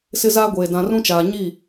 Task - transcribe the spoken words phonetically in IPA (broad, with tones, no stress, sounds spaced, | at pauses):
s ɪ˦ z aː˦ ɡʷ eː˨ d ã˨ r ũ˦ t͡ʃ aː˨ ɲ i˦˨